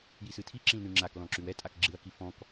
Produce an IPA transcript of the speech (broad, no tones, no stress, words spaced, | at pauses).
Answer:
jisɨtʰi ǁĩlnʉŋ͡ǁak lɔ̃ǁʉwɛ tʼakɡ͡ǁɨɐ̯ kifɔ̃k